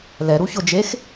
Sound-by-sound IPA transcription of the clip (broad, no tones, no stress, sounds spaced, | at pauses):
l ɛ ɾ u ç ʊ d͡ʒ e x